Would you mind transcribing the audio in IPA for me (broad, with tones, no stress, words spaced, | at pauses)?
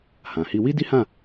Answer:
hã˨hi˧ wi˦di˦hã˦˨